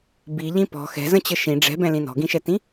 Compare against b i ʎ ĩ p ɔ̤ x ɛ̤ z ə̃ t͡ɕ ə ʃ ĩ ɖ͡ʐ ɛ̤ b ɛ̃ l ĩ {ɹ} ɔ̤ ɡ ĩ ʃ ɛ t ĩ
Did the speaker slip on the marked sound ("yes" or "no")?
yes